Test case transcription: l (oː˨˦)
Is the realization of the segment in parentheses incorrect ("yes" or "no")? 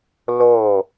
yes